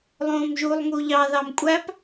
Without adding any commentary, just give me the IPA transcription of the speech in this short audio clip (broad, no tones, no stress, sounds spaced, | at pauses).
lˠ õː m ʒ u lˠ ŋ u ʎ ɑ ð ɑ m kʷʼ æ p